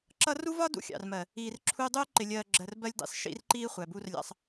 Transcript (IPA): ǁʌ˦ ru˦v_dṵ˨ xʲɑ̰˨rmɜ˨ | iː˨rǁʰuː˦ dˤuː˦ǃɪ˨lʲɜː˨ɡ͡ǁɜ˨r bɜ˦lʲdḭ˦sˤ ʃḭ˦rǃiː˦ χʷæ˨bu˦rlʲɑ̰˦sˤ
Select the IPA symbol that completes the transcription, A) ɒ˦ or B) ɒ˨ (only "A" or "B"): A